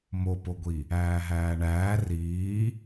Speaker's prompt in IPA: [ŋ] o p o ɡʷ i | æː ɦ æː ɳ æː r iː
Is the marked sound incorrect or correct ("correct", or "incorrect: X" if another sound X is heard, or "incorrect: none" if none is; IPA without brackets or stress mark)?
incorrect: m